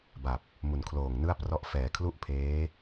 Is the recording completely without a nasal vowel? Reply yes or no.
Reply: yes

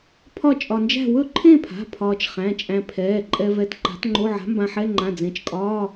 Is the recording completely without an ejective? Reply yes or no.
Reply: no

